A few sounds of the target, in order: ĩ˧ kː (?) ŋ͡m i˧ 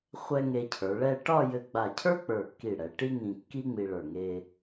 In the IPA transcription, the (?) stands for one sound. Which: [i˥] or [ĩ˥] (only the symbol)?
i˥